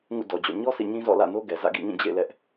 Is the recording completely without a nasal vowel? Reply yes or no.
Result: no